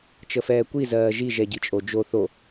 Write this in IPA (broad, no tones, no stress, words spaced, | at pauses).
t͡ʃəfɛːkʷi zɜːʒi ʒɛɟit͡ʃʼod͡ʒo θo